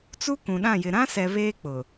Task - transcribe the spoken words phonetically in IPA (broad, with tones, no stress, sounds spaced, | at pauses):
t͡s u˦ k ũ˨ ɗ ã˦˨ j ɪ˨ ɾ ã˦ s ɛ˨ β eː˦ k͡p ʊ˨